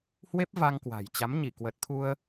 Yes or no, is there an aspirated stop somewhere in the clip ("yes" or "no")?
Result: yes